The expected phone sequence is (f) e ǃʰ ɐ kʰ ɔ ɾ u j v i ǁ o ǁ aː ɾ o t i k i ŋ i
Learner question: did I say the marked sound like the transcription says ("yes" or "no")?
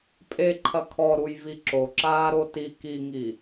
no